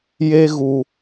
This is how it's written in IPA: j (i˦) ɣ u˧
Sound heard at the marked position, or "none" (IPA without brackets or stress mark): e˦